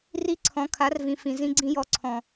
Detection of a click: present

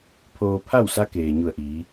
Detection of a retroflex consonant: absent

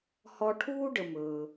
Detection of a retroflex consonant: present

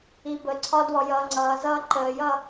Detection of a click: present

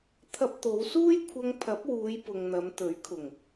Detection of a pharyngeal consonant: absent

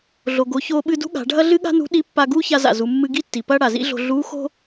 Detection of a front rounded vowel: absent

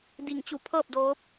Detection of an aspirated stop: present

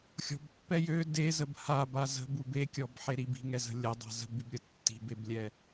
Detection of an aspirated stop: absent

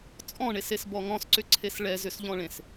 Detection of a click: present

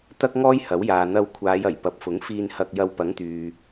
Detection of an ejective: absent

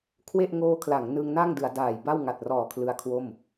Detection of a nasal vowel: absent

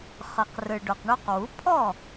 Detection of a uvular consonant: present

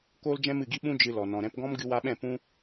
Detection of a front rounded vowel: absent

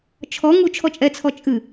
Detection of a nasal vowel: absent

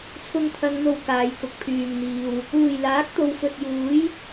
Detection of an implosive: absent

